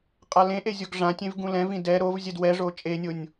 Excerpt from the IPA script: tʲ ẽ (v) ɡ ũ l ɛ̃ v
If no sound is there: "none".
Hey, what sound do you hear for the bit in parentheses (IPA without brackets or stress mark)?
v